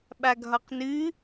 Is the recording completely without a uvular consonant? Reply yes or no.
no